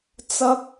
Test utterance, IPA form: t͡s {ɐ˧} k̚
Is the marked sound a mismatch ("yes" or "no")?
yes